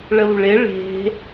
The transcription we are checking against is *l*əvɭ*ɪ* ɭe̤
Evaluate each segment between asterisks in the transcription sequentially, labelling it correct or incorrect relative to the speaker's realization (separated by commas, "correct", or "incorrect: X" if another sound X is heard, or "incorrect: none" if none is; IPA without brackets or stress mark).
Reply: incorrect: ɭ, correct